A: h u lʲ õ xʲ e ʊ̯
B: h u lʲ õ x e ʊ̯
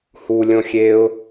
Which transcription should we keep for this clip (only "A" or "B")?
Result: A